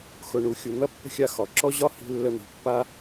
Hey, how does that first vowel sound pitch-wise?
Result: low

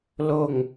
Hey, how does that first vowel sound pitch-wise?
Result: falling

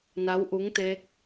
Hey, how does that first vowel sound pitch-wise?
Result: rising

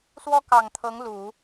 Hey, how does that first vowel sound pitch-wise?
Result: high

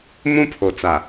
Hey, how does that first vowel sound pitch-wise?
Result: high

